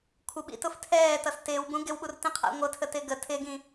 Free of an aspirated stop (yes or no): no